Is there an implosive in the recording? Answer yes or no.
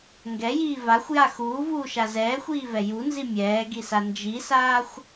no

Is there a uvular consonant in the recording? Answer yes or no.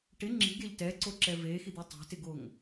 no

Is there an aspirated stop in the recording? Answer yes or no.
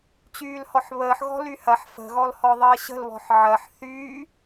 no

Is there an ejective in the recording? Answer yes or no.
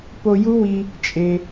yes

